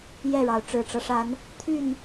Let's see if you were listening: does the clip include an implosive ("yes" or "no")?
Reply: no